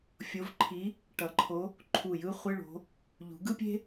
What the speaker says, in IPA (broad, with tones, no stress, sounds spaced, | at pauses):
fʲ o˨˦ v ǃʰ i˨˦ | ʈ ʌ˨˩˦ ǃʰ o˨˦ | ǃʰ u˧˩ j ɯ˥ χʷ ɯ˧˥˧ ɭ o̤˨˦ | ʎ ṳ˨˩˦ ɡ ɯ˥ pʲ e̤˥